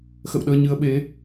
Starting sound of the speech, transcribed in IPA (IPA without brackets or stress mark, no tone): x